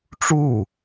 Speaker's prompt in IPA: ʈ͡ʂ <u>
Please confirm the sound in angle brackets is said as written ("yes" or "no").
yes